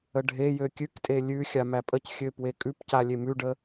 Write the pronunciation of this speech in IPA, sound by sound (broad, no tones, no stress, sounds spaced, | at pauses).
ə ɖʱ e j ø kʲ ʉ k tʼ e lʲ ʉ xʲ a m æ pʼ ə c xʲ ø p w e kʼ ʉ p c a lʲ e m ʉ ɖ ə